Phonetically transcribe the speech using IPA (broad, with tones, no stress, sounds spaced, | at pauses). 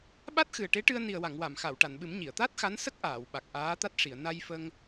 ɓ a˦˥ t̚ x ɨ˨˩ ə̯ ʈ e˧˥ ʈ ɨ˧ ə̯ n i˨˩ ə̯ w a˨˩˨ ŋ w a˨˩˨ m x a˨˩˨ w ʈ a˨˩˨ n ɓ ɨ˨˩˦ m ɲ i˨˩˨ ə̯ t̪ a˦˥ t̚ x a˧˥ n s ə˦˥ k̚ ʔ aː˨˩˨ w ɓ a˨˩ k̚ ʔ aː˧˥ t̪ a˦˥ t̚ ʂ i˨˩˨ ə̯ n a˧ j f ə˧ ŋ